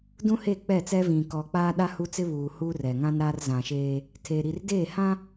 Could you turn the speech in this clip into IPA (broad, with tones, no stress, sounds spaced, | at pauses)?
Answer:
d ũ˦ h e˦˨ k͡p ɛ˦˨ t͡s ɛ˦ v ĩ˨ k ɔ˨ k͡p aː˦ ɗ a˦ h u˦ t͡s ɪ˦ β uː˨ h uː˦ r ɛ˨ ŋ ã˦ n ɾ aː˦ r z ã˨ ʃ eː˦ | tʰ eː˨ ɾ i˨ r d eː˦˨ h ã˦